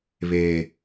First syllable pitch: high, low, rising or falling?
low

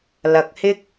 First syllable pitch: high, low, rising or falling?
low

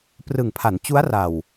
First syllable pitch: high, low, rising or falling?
low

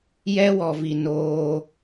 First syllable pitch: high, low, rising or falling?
high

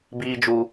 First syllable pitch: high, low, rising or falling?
low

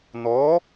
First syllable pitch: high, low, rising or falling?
rising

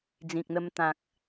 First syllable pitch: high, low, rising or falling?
low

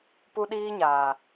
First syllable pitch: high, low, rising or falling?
high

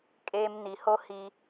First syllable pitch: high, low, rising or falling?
high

